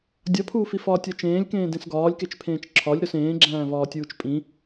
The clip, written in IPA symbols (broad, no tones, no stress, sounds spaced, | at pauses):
dʲ ɒ pʰ uː f i f ɒː tʲ ɒ t͡ʃ ẽː lʲ k ẽː d ẽ s ɡ ɒː lʲ k e t͡ʃ pʰ ẽː t͡ʃ ǁʰ ɒ lʲ ɾ o s ẽː ɡ͡ǁ æ̃ː v ɒː tʲ uː t͡ʃ pʼ ĩ